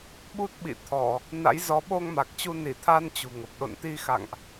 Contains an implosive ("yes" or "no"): yes